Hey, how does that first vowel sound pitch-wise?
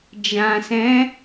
low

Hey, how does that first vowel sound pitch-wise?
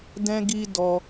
high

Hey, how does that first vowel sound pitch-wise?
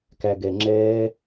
low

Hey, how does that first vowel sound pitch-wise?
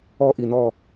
high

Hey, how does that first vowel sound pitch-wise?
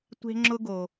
high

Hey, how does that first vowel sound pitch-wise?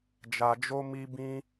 low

